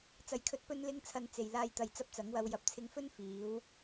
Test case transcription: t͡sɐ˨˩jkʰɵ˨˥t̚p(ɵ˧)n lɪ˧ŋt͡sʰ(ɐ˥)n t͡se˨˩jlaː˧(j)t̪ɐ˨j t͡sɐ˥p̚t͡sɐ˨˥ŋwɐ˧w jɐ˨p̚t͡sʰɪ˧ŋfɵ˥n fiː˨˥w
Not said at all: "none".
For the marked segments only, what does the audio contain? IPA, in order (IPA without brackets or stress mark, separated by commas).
ɵ˧, ɐ˨, j